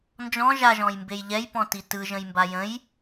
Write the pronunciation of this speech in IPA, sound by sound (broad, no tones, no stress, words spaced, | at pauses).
nd͡ʒɔ̃ ʒaʒɔ̃jmbej ʎɛjpɔ̃ti tɯʒə̃jmba jə̃j